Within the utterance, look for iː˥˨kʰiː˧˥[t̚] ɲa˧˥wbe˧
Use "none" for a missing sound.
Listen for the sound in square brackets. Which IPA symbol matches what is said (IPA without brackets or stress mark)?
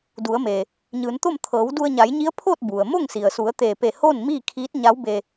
t̚